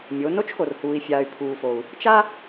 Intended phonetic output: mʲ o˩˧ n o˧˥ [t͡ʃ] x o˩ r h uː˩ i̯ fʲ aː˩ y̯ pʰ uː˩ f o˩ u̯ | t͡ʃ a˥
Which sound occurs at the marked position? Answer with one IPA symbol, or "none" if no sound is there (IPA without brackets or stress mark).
t͡ʃ